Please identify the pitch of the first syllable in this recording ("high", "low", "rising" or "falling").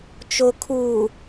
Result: low